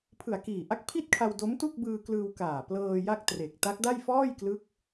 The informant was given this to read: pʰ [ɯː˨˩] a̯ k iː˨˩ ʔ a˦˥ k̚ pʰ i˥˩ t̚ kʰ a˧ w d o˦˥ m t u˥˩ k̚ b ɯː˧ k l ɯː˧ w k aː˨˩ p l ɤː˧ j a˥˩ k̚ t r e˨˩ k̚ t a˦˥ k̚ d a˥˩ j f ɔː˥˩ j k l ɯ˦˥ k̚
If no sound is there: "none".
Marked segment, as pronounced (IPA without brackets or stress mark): ɯ˨˩